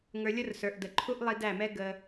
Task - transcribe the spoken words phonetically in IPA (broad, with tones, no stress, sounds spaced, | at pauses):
ŋ ə˞˧ lʲ ʊ˦ r s ə˞˨ ʔ d ə˨ ǃʰ u˦ ʔ lˠ i˧ d æ˦˨ m ɛ˦ ɡ ə˧